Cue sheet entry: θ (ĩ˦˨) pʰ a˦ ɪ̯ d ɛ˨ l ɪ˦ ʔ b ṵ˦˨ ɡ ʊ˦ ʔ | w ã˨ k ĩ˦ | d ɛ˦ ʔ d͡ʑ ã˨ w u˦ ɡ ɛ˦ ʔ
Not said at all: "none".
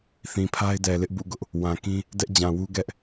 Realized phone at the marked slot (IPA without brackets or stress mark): ĩ˨